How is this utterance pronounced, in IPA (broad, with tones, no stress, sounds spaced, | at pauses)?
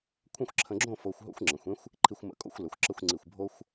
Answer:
kʷʰ ə̃˥˧ xʷ ǁʰ ə̃˧ ɡ͡ǁ õ˥˧ f o˧ xʷ ɦ o̰˥ xʷ ŋ͡ǁ ə̃˩˧ xʷ ẽ˥ xʷ | ǃʰ i˧ xʷ m ə̰˧˩ kʼ o̰˥˧ xʷ l ə˩˧ xʷ ǁ ə˥˧ xʷ ŋ͡ǀ i˧˩ xʷ bʱ o˥ xʷ